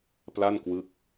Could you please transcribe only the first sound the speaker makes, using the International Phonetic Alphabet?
p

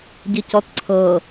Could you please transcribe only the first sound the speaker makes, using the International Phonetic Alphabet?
ɟ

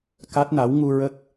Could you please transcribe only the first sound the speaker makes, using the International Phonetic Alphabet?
k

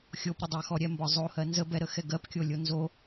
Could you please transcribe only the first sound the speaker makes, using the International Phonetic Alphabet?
xʲ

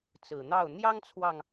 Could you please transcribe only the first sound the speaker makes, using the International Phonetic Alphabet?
t͡s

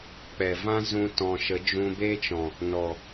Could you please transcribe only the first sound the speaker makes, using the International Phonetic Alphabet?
k͡p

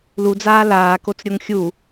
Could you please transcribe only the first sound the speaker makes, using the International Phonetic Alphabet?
l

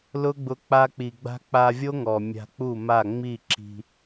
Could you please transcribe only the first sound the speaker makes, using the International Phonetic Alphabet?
l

